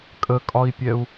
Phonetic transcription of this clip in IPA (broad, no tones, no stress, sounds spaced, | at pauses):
kʼ ə kʼ ɒ i̯ pʲ ɛ u̯